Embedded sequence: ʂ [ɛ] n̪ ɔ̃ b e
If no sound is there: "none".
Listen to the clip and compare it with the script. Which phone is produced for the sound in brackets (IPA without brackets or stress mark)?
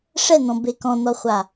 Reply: ɛ